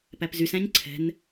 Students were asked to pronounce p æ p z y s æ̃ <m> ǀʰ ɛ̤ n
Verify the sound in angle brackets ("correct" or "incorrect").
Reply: incorrect